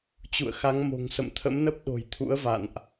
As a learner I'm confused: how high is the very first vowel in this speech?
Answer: high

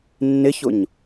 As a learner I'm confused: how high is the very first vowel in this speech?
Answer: high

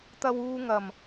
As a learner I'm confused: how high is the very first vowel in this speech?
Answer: low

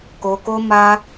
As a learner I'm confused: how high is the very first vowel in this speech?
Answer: mid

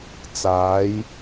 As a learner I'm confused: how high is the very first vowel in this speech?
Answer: low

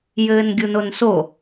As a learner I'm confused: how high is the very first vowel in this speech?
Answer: mid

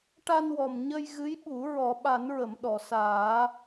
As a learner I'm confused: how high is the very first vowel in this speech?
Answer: low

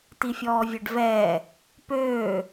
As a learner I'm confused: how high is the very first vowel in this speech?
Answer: high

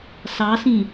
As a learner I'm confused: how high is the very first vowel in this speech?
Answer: low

